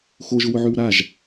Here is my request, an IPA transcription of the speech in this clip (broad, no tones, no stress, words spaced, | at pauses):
xoʒʊwʊʕʉw ɾaʒ